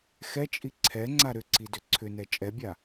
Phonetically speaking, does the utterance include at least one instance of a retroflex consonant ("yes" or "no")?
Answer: no